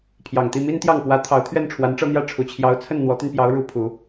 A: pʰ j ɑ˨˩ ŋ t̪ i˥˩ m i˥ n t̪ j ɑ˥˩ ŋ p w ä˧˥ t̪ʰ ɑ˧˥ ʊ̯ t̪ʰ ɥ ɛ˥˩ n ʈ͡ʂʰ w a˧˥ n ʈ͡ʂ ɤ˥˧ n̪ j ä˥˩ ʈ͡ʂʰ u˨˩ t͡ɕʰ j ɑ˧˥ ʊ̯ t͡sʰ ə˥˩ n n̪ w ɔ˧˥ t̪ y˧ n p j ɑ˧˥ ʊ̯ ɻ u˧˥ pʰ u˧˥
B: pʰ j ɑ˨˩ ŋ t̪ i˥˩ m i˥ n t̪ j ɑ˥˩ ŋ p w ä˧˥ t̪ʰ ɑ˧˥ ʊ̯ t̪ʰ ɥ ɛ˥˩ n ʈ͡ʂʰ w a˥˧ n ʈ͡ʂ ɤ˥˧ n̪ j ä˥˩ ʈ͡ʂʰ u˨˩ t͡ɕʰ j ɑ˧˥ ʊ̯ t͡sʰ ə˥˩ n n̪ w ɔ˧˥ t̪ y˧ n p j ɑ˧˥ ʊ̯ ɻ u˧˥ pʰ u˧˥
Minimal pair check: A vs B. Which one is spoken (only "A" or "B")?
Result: A